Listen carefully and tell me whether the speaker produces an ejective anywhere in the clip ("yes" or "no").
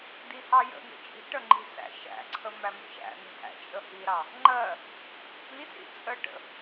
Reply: yes